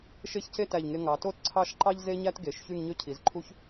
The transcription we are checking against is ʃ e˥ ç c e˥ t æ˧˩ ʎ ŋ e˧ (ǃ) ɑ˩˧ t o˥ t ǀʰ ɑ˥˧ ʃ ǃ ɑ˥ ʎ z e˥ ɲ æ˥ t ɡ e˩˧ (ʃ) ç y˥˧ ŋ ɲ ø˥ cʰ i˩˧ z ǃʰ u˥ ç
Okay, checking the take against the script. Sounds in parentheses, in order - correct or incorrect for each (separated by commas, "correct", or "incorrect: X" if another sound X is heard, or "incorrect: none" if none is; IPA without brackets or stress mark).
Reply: incorrect: ŋ, correct